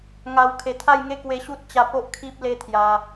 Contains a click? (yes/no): no